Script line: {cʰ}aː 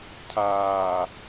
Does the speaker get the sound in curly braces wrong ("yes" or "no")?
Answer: no